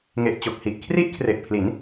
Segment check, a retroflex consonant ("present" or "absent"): absent